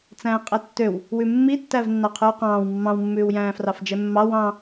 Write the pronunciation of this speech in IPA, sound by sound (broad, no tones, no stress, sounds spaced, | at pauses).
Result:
t͡s æ̃ː qʼ ɛ tː ø w | w ʉ mː i tː æ v nː ɑ qʰ ʉː q ɑ̃ː w mː ɑ̃ w mː ʉː w j æ̃ː f r ɑ f d͡ʒ ɛ mː ɑ w ɑ̃